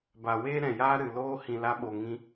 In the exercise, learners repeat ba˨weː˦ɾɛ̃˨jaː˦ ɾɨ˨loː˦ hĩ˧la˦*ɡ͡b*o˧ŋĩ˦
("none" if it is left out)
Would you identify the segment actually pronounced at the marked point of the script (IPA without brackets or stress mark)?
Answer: ɓ